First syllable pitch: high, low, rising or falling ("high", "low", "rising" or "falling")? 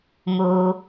low